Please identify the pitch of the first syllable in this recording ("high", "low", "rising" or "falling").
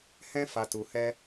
high